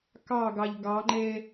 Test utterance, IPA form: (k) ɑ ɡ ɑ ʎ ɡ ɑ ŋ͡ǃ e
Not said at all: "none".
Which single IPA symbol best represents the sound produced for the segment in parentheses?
k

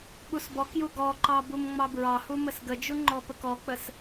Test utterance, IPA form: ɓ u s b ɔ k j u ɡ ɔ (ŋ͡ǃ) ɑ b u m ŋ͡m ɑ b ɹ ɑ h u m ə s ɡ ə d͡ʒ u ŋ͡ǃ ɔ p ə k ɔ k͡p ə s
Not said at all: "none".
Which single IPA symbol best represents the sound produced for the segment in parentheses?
ǃ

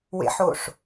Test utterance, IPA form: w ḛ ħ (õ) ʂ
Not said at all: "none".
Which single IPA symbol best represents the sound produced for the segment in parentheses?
o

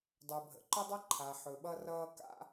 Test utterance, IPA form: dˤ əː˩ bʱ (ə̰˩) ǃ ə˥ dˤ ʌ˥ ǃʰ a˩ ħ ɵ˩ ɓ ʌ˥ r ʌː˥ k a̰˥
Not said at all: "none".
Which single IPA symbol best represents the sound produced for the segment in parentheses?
ə̰˩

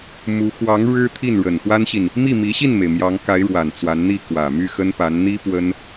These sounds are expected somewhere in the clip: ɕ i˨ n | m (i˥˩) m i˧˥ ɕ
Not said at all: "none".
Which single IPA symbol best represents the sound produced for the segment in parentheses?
i˥˩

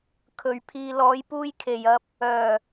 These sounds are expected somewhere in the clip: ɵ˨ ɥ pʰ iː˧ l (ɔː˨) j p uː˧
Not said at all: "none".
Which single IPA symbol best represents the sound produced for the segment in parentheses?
ɔː˨˧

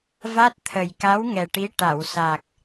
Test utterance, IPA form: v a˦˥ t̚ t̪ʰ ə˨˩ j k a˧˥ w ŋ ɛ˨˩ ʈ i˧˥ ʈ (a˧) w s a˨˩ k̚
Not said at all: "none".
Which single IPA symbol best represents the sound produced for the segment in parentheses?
a˨˩˨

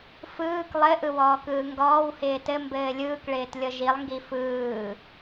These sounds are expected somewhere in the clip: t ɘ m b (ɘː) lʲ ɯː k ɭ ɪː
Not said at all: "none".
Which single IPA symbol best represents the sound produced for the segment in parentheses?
ɘː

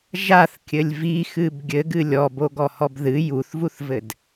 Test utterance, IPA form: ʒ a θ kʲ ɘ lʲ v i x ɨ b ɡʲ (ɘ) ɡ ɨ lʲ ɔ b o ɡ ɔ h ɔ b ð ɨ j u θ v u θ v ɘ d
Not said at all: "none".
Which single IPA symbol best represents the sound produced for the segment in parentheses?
ɘ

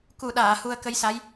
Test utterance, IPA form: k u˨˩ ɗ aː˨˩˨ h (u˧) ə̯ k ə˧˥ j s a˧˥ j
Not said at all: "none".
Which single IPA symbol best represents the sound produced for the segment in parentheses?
u˧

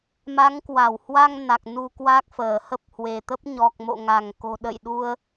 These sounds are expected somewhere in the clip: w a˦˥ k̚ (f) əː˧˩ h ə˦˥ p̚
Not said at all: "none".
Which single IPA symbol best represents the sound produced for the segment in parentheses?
f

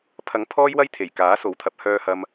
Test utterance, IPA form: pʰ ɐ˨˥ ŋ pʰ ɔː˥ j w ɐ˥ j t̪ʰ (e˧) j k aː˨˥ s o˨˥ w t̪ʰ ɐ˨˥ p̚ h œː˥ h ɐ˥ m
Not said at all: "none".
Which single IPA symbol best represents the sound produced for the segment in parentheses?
e˨˩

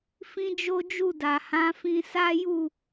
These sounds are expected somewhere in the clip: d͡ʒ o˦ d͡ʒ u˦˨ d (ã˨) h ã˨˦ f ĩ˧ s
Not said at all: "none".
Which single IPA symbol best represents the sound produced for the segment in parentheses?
a˨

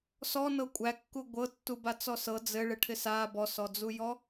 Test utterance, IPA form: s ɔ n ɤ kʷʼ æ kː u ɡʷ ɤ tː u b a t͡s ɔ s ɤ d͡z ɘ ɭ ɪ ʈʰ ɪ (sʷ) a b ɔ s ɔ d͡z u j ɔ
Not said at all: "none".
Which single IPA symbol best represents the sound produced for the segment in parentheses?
s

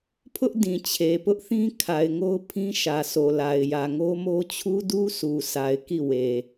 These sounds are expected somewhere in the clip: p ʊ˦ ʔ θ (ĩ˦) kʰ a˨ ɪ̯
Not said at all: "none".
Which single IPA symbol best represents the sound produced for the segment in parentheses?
ĩ˦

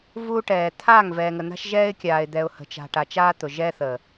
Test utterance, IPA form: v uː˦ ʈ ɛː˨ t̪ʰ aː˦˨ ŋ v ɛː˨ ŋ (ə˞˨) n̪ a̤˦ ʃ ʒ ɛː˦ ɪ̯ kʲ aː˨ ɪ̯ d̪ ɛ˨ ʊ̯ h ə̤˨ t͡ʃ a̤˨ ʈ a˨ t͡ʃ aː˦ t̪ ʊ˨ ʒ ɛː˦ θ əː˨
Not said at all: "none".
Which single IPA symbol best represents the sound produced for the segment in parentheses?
ə˨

